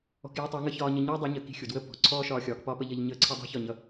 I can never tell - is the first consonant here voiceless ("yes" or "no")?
yes